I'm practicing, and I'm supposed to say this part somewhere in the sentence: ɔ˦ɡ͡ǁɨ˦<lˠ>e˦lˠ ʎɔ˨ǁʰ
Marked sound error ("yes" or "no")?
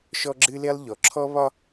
yes